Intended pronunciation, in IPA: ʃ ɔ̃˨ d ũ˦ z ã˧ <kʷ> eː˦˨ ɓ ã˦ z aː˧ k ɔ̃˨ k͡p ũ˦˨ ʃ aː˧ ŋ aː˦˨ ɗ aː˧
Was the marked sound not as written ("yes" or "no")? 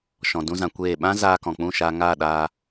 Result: no